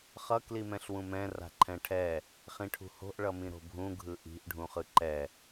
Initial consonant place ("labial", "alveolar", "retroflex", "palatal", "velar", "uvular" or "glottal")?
uvular